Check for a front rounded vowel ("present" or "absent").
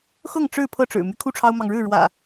present